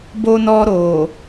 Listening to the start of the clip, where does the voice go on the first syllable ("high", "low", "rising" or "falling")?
high